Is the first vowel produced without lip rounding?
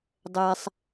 yes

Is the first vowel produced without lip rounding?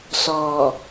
no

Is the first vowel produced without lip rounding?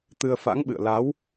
yes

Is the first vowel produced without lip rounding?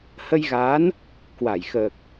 yes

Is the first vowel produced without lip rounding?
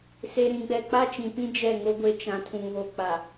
yes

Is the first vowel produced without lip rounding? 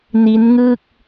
yes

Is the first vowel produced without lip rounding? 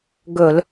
no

